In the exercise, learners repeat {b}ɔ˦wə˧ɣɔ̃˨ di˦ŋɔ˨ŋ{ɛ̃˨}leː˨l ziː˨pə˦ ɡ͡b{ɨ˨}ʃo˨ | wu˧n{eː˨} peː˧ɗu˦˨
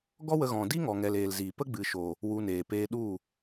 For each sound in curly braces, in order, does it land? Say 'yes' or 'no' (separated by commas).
no, no, yes, yes